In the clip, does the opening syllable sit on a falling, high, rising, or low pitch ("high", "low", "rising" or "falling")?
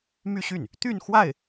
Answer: falling